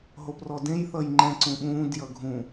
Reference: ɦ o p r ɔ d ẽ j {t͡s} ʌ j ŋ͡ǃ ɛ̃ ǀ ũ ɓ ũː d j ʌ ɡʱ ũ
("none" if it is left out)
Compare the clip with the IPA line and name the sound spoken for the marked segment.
θ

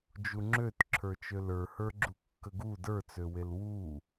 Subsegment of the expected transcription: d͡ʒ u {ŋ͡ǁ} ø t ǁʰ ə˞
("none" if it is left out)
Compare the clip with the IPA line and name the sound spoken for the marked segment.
ŋ͡ǁ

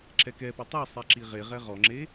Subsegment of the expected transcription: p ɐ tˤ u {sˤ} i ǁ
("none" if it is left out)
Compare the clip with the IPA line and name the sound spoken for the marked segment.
sˤ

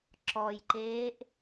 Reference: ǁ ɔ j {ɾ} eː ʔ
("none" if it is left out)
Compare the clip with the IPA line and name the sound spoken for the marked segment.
ǃ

